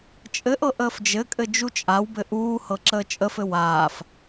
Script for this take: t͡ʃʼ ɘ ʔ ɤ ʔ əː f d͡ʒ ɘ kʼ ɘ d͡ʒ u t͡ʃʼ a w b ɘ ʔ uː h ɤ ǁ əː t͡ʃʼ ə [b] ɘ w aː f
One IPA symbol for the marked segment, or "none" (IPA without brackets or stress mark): f